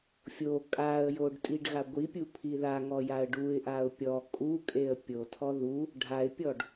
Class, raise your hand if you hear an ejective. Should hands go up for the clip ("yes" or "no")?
yes